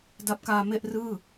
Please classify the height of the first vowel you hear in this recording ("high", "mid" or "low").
low